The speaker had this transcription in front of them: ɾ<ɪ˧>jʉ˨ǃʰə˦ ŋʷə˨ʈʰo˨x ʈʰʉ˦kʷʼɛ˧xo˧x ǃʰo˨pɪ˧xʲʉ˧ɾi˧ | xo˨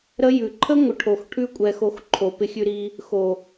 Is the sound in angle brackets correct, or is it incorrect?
incorrect: ə˧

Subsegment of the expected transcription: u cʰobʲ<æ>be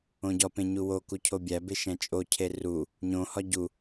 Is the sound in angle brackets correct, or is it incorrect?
correct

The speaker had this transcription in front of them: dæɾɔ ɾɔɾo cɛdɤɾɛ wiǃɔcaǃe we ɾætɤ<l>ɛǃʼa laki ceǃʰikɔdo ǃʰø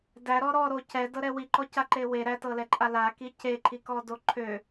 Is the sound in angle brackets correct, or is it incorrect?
correct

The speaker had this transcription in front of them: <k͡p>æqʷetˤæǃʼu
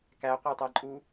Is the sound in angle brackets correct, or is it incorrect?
incorrect: k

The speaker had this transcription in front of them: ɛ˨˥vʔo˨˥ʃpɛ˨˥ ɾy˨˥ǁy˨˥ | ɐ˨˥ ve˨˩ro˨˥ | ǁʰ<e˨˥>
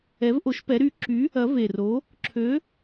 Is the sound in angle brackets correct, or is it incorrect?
incorrect: ø˨˥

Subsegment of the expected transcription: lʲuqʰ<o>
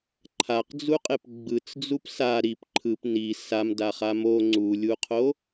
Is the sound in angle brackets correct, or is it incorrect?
correct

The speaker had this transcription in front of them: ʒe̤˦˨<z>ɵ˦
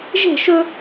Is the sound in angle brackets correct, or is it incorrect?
incorrect: ʃ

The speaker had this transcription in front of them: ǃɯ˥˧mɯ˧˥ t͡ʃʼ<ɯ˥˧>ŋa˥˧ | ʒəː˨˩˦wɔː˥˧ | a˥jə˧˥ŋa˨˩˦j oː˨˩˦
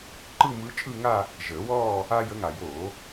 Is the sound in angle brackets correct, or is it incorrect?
correct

